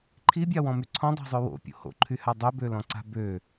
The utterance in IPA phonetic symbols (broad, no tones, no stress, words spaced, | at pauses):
ǃʰibʲawɔ̃my ǀʰɔ̃dˤa̤zˤø wo̰pʲo̰ ho̰ǃʰyha dˤøbølɔ̃ǀa̤ bø